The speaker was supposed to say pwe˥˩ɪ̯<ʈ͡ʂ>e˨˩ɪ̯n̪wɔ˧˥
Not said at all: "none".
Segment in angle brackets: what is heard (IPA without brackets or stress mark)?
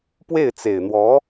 t͡s